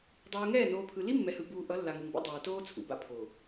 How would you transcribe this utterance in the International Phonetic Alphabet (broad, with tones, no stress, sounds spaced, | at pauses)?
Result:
dˤ uː˨ ŋ ɛː˦˨ n oː˨ pʰ ɯ˨ l i˦ mː ɛ˨ h ɯ˨ b uː˨ ʔ ʌ˨˦ lː a˨ ŋ ɯ˨ ŋ b o̰˦ dˤ aː˨ t oː˦ t͡sʰ ṵ˨ b a̰˦ pʰ o˨